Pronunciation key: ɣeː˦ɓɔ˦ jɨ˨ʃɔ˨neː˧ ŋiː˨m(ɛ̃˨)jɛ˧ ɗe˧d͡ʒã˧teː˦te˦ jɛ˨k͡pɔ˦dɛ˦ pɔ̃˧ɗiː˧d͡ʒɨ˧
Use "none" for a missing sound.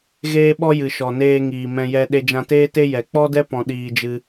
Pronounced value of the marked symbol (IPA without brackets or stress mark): ɛ̃˧